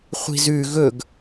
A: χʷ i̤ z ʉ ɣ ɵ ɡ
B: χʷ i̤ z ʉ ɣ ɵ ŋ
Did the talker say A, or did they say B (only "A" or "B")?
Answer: A